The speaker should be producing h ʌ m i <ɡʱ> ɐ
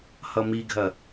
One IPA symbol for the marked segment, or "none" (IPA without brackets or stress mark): ɡʱ